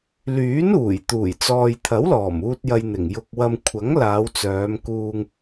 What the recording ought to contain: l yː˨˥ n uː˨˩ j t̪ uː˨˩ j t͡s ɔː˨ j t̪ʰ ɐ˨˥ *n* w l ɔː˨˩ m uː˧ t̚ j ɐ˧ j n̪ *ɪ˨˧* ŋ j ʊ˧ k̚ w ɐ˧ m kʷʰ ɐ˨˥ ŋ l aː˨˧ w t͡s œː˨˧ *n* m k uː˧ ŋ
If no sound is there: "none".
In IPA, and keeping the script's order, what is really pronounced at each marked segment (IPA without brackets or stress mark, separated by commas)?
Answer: none, ɪ˨˩, none